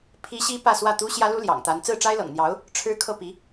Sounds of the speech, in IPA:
pʰ i˥ ɕ i˥ p ä˥˧ s w ä˥˩ t̪ u˥ ɕ j ä˥ l u˥ l j ɑ̰˨˩ ŋ t̪ a˧˥ n t͡s ɹ̩˥˩ ʈ͡ʂ a˥ ɪ̯ l ɤ̰˨˩ ŋ n̪ j ɑ˧˥ ʊ̯ | ʈ͡ʂʰ ɻ̩˥ kʰ ɤ˥˩ p i˧˥

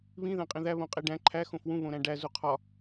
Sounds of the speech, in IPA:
β ĩ ð æ̃ qʼ ĩ ð æ β õ qʼ i ɖ æ̃ ǃʰ æ x õ f w ũ β õ ɾ æ̃ ɖ æ z u qʰ ɒ

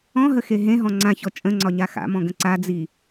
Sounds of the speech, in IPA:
ɔ̃ ɦ ə x e ɦ ẽ ɦ ɔ̃ ŋ͡ǀ ã ç ɔ t͡ʃʼ ə̃ ŋ͡ǀ ɒ ɲ a x a̰ m ɔ̃ ɡ ə̃ ǀ a d͡z i

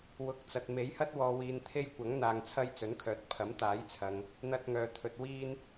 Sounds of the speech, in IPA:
w ʊ˨ k̚ t͡s ɐ˨ t̚ m e˨˥ j h ɐ˥ t̚ w ɔː˨ w iː˨ n t̪ʰ e˧ j kʷ ɐ˨˥ ŋ n̪ aː˨ ŋ t͡sʰ ɐ˧ j t͡s ɵ˨˥ n kʰ œː˨ t̚ pʰ ɐ˨˥ m t̪ aː˨˥ j t͡sʰ ɐ˨ ŋ | n̪ ɐ˧ t̚ ŋ œː˨ t̪ʰ ɵ˨ t̚ w iː˧ n

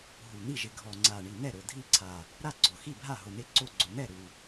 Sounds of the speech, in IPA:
ɦ u˨˩ n̪ i˥˩ ʒ ɪ˨˩ ɡʱ ɔ˨˩ ŋ͡ǀ a˨˩ ɳ i˨˩ n ɛ˥˩ ɾ ʊ˨˩ dʱ i˥˩ ǀʰ a˨˩ | ɾ a˥˩ ɡ͡ǀ ɔ˨˩ x i˥˩ bʱ a˥˩ ɦ ʊ˨˩ n e˥˩ ǀ o˥˩ ɡ͡ǀ ʊ˨˩ n̪ ɛ˥˩ ɾ u˨˩

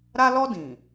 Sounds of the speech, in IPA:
ɾ a˦ l ɔ˦ d ĩ˨

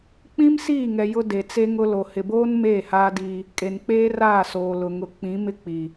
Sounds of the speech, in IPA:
k͡p ĩ˦ m s iː˦˨ ŋ ɛ˨ j ʊ˦ d e˨ t͡s e˦ ŋ ʊ˦ l o˨ h ɪ˨ b oː˦ n m eː˦˨ h aː˦ d iː˦ | kʼ e˨ n k͡p eː˦ r aː˦˨ s oː˨ l ʊ˨ ŋ ʊ˨ k͡p ĩ˨˦ m ɪ˦ k͡p i˨

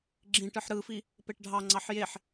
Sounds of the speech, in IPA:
ɡ͡ǁ ĩ ʈ ɯ ħ ɾ ɯ f i | p e ʈ ɖʱ ɑ ŋ͡ǀ ɑ ħ j e ħ

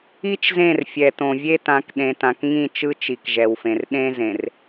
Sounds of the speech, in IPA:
i˦ t͡ʃ z ẽ˦˨ r fʲ ɛ˨ t õ˨ vʲ e˦ t ã˨˦ k ɗ ẽ˨ t ã˨ k ŋ ĩ˦˨ t͡ʃ ɯ˦ t͡ʃ i˨ k ʒ ɛ˨ w f ẽ˨ r ɗ ẽ˦ z ẽ˨ r

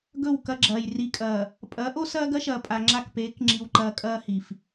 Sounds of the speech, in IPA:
ɡ ɵ˦˨ w k ɐ˦ ɡ͡ǁ ɐː˨ j r i˨ kʼ ɐː˨ | pʼ ɐː˨˦ ʔ o˦ s ɐː˦ ɡ ɐ˦ ʃ ɐː˨ pʼ a˨ ŋ͡ǁ a˦˨ k p eː˨˦ k ŋ͡ǁ i˨ w ǃ ɐː˨ kʼ ɐː˦ h i˨ f

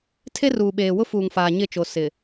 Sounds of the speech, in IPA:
tʰ e˦ r uː˨ ɓ eː˨ w ʊ˦ f uː˨ ŋ f aː˨ ɲ ɪ˦˨ t͡ʃ o˨ s ɪ˨

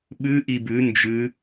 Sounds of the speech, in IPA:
ɓ ʉ ʔ i b ʉ n d͡ʒ ʉ

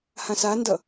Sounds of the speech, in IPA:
h ã s a n d ʌ

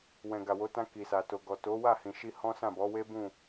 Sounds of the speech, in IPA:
w ɛ̃˨ ɡ a˨ w o˨˦ t ã˧ k i˨ s a˨ t o˨ ɡ ɔ˨ t o˨˦ w a˦˨ h ĩ˨ ʃ i˧ h ɔ̃˦ s ã˦˨ b ɔ˨˦ w e˦ b ũ˦˨

